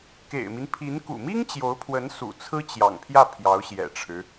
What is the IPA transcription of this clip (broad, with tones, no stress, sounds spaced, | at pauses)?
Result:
k ḛ˨˩ ɪ̯ m i˦ n pʰ i˧˥ n k ṵ˨˩ m i˥ ŋ t͡ɕ j o˧˥ ʊ̯ pʰ w ə˧˥ n s ṵ˨˩ t͡sʰ ɹ̩˥ t͡ɕ j ɑ̰˨˩ ŋ pʰ j ä˥˩ pʰ j ɑ˧˥ ʊ̯ ɕ j ɛ̰˨˩ ʈ͡ʂʰ ɻ̩˦